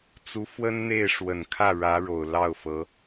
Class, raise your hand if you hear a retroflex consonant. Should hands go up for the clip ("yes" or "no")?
yes